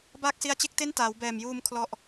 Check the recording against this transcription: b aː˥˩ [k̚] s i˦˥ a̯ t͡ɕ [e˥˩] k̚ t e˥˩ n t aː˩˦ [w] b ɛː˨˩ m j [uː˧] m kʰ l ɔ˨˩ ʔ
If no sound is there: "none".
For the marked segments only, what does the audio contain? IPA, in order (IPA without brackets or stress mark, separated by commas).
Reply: k̚, e˥˩, w, uː˧